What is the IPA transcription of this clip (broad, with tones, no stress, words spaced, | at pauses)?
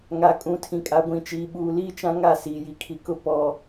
ŋa˨kʼũ˨tʰĩ˨kʼa˨ ɡʷĩ˨t͡ʃiː˨ɓuː˨liː˦ t͡ʃã˦ŋa˦˨siː˨ ji˨kʰi˨kʊ˦ pɔ˨